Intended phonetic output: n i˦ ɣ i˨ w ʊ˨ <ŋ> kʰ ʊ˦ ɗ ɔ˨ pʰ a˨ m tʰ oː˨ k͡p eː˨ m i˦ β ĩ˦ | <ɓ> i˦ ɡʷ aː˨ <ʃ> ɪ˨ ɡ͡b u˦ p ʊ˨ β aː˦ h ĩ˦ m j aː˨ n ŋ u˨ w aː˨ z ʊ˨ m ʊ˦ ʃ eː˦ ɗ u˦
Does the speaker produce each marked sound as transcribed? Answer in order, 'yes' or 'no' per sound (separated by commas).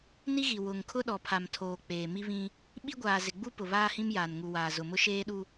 yes, yes, no